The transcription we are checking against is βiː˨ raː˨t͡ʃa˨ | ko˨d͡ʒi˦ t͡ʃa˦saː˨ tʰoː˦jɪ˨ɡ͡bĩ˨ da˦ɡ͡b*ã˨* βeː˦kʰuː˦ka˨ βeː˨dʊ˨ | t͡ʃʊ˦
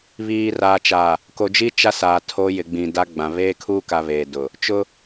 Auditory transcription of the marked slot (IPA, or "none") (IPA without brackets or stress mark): ã˨